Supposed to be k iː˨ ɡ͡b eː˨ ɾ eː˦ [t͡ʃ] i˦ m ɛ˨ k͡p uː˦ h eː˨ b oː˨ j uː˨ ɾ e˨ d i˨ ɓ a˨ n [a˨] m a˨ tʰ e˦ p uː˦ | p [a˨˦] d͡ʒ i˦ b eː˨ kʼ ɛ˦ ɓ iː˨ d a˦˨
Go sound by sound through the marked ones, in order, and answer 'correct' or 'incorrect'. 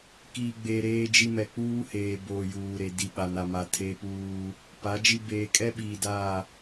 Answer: incorrect: d͡ʒ, correct, correct

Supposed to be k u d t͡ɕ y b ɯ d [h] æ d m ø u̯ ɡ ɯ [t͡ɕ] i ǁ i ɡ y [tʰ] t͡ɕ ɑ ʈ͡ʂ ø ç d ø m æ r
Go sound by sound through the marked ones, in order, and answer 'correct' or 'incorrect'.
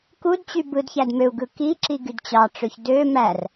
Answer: incorrect: ç, incorrect: k, incorrect: d

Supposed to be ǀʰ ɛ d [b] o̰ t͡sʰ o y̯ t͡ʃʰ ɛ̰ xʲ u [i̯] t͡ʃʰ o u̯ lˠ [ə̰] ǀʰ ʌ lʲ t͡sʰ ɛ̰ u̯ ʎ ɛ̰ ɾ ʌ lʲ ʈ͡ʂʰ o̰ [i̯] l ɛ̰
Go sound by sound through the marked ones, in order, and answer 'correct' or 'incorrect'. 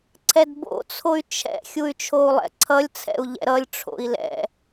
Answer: correct, incorrect: y̯, incorrect: ɛ̰, correct

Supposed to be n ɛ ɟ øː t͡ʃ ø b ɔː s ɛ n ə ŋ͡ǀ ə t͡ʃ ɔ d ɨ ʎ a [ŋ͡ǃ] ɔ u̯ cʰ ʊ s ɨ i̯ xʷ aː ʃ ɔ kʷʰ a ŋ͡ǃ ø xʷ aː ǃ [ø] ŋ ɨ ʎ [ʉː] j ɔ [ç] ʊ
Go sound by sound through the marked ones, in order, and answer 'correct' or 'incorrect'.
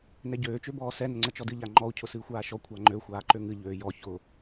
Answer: correct, correct, incorrect: øː, correct

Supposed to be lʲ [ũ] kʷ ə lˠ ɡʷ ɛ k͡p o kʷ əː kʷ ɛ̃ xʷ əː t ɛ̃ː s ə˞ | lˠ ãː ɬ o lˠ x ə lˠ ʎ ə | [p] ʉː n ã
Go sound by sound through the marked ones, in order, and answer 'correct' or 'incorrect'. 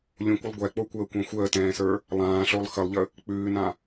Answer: correct, incorrect: k͡p

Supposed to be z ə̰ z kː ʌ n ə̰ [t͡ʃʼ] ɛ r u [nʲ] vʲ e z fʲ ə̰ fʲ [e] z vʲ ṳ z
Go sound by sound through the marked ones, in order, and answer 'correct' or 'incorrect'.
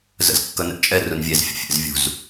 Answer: correct, incorrect: n, incorrect: ḛ

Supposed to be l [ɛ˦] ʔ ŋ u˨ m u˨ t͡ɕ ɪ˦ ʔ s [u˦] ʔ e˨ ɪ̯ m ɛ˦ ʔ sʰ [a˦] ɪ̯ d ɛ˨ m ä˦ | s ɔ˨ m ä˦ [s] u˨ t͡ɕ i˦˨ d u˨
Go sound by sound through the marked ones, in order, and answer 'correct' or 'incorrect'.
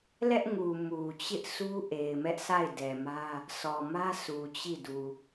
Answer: correct, correct, incorrect: a˦˨, correct

